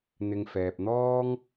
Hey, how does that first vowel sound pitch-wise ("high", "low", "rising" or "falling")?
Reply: low